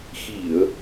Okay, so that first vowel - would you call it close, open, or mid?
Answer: close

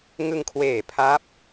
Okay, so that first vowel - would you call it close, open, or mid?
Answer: close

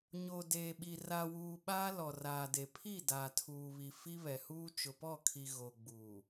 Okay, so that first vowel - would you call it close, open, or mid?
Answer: mid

